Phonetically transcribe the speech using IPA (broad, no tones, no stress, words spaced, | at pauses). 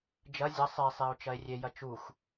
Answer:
d͡ʒɐ zʲɐ sˤesˤeo̯ t͡ʃɐe̯rʲejɐ t͡ʃux